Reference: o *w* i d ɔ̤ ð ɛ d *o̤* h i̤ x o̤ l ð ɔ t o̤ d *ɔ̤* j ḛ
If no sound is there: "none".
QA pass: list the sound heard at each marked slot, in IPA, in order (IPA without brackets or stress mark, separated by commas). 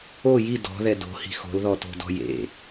j, o̤, ɔ̤